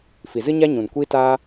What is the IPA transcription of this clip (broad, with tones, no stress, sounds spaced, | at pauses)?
f i˨ z ɨ˦ ɲ a˦ ɲ ũ˨ n kʷ i˦ t aː˦